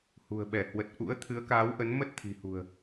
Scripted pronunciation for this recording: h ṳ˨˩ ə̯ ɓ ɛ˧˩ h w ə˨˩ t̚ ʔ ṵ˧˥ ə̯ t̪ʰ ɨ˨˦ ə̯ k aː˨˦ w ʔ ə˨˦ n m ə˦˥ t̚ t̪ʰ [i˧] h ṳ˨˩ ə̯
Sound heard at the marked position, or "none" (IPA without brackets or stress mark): i̤˨˩